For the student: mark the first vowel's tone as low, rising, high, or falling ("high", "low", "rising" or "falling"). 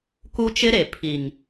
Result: high